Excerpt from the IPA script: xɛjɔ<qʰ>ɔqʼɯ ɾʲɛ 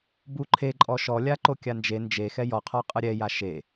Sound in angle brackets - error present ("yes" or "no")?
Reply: no